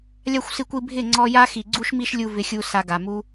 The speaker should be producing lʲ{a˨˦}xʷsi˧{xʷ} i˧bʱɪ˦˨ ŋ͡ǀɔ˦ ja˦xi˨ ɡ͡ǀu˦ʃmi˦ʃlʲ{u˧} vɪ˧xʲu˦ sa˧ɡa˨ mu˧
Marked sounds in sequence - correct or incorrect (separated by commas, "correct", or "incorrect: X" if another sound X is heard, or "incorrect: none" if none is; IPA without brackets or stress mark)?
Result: incorrect: a˦, incorrect: kʷ, correct